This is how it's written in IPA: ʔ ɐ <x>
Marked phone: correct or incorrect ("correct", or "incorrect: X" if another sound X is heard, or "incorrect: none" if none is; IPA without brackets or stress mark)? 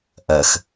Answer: correct